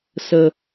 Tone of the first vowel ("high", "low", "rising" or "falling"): low